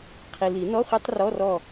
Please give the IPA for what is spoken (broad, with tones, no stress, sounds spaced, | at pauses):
qʰ i˨ l i˨˩˦ n ɔ˧˥˧ χʷ e˦˥ tˤ r ɔ˧˥˧ r ɔ˦˨